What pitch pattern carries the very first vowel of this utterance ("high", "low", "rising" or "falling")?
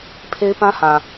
high